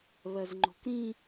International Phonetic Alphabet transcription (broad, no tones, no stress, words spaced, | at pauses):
βɜzŋ͡ǃo̤kɾĩ